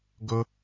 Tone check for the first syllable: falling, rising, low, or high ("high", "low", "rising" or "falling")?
high